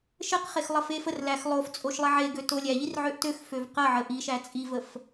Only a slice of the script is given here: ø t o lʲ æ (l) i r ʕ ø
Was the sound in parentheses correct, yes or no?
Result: no